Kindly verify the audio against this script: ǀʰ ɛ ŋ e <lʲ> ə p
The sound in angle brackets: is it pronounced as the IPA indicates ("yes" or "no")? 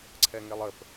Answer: no